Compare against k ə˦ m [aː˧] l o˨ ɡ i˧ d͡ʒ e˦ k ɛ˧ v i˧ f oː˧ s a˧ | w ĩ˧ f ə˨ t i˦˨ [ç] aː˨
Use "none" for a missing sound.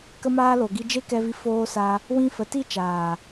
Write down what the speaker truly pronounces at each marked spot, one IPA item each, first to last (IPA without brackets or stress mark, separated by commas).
aː˦, t͡ʃ